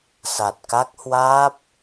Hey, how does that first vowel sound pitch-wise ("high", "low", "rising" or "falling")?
low